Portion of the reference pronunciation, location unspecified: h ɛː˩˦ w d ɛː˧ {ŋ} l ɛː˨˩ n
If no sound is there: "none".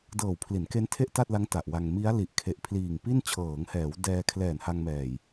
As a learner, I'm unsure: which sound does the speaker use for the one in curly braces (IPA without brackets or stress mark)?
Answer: kʰ